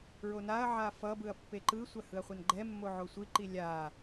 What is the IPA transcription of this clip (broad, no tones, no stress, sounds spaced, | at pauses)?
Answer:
ɹ o n a ɐ̯ ʕ a f ʌ b ɯ ɐ̯ pː e ǃ ɯ sʷ a h ɯ ɐ̯ χʷ a n ɡ͡ǃ ɛ mː o ʕ o sʷ i ǃ i lʲ a